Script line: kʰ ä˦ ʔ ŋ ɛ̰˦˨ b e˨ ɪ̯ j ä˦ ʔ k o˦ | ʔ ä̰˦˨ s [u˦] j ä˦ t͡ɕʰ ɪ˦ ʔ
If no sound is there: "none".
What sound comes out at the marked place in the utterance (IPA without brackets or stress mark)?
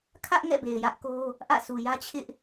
u˨